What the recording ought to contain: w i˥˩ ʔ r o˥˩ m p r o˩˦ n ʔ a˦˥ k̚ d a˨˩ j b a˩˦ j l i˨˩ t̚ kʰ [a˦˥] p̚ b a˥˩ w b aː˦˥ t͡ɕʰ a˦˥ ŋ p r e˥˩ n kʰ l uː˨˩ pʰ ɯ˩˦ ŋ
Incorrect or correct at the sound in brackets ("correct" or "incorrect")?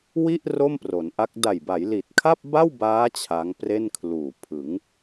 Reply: incorrect